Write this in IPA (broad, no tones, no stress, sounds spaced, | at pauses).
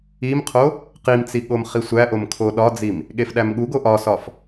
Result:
i m qʰ o | q i m t͡s i ɠ o m χ i sʷ æ ʔ o m kʰ o ɗ ɒ d͡z i m | ɠ e f ɗ æ m ɠ u ɡ o ʔ ɒ s ɒ f